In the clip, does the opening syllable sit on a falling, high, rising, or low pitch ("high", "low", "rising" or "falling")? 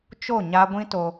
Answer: falling